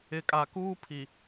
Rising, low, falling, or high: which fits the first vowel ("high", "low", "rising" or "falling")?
low